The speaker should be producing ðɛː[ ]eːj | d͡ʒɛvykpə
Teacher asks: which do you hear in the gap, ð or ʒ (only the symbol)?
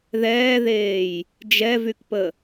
ð